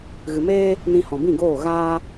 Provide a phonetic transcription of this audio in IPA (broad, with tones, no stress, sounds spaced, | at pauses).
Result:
ɣ ɨ˨ m eː˦ | n ĩ˧ h ɔ̃˨ b ĩ˦˨ ɡ oː˦˨ ɣ aː˦